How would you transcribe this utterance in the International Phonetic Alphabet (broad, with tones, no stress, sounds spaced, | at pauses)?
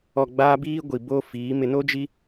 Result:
ɔ˨ ɡ͡b aː˦ b iː˦ ɡʷ i˨ b oː˦ f iː˨˦ m ɪ˨ n o˦ d͡ʒ i˦